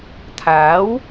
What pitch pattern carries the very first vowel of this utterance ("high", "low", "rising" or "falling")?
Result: rising